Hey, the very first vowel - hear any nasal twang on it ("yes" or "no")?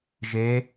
no